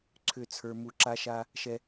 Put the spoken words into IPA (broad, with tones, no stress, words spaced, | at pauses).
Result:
ǀʰʏ˦˨ t͡sʰə˞˦mu˦ ǁa˦ʃa˦ | ʃɛ˦